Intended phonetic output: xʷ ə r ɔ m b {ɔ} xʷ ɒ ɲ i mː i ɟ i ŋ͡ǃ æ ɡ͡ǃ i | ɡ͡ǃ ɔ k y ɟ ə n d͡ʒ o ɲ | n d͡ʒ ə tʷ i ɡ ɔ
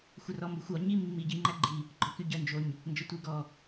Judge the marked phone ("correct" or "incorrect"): incorrect